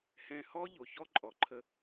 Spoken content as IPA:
h ɛ̃˧ h ɔ˦ ʎ o˨ ç ɔ˦ ǃʼ ɔ˨ ǃʰ ə˧

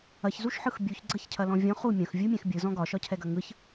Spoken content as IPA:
ɐ ç z u ʃ ħ ɯ x bʲ u ç ɡ͡ǀ ɐ ç cʰ ɐ l ɔ̃ vʲ ɔ̃ χ u mʲ ɐ̃ x vʲ u mʲ ɛ̃ x bʲ ɯ z ɔ̃ ɡ ɒ ʃ ɒ cʰ ɛ ɡ ɐ ŋ ɯ ç

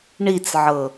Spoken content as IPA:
ɳ i t͡s ʕ ɤ

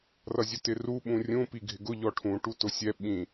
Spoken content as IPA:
r ʌ zʲ ʊ t ɪ r u ɓ ũ rʲ ũ p i ɡʱ ɪ ɡ ʊ ʎ ɔ ʈʰ ũ ʈ u t ʊ sʲ ɛ ɓ ĩ

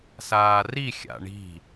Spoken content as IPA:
s aː r i xʲ a̰ ɳ i̤

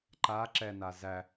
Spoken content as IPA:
ǃ a ǁ ɛ n a z æ

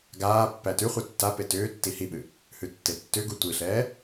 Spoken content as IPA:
ɡ aː pː æ t ʉ χʷ a tː a p e t ʏː tː i h i ɓ ɨ | h ʉ tː e tː ʏ ɡ u tʷ i ɬ ɛː

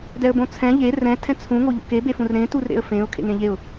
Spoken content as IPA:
d ɛ ə̯ b õ t͡sʰ ɛ̃ ʎ e r ɛ̃ tʰ ɛ̃ t͡sʰ ũ ŋ o ʎ o̰ k e b e f ũ r ɾ ẽ t u r ɾ ḛ ə̯ f ẽ ʊ̯ kʰ ḛ ŋ ẽ ʎ e ʊ̯

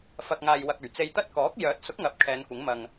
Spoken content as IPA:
f ɐ˧ k̚ ŋ aː˧ j w ɐ˧ k̚ ɵ˨˩ ɥ t͡s e˧ j t̪ ɐ˥ t̚ k ɔː˨˥ k̚ j œː˨˥ t̚ s ʊ˨˥ k̚ ŋ ɐ˨ p̚ kʰ ɛː˨˧ n kʷ ɪ˨˥ ŋ m ɐ˧ ŋ

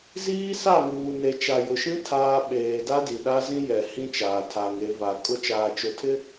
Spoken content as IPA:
z iː˦ s a˦˨ ŋ uː˨ n e˨ t͡ʃ a˨ j ʊ˨ ʃ ĩ˦ tʰ aː˦ ɓ eː˨ d a˦ d i˨ ɗ a˦ z ĩ˦ j ɛ˨ h ĩ˦ t͡ʃ aː˨ tʰ a˨ ŋ e˨˦ v a˨ kʼ ʊ˦ t͡ʃ aː˨ t͡ʃ ʊ˨ tʰ ɪ˦

